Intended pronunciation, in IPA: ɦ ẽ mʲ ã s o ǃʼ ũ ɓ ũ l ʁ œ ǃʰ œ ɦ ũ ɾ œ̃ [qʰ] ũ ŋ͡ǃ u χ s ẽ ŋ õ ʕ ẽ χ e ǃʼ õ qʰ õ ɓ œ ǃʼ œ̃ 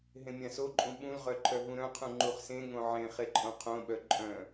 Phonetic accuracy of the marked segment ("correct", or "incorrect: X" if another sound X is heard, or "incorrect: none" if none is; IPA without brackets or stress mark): correct